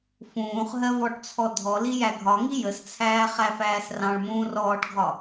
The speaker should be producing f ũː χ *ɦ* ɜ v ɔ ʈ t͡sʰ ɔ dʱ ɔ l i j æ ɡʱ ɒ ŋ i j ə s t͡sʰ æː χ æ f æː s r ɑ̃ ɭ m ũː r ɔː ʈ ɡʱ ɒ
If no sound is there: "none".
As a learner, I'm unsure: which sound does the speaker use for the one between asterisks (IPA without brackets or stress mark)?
ɦ